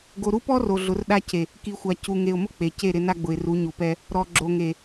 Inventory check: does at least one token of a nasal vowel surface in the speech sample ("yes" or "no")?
no